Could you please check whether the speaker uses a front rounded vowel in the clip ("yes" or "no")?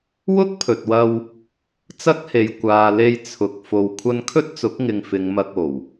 no